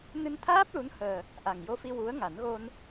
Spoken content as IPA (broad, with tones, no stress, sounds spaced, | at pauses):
n ɨ˧ n t̪ʰ aː˦˥ p̚ l u˧˥ n h əː˨˩ | ʔ a˨˩ ŋ j o˧ f i˧ w u˧˥ ə̯ ŋ a˨˩˦ n ɣ o˧ n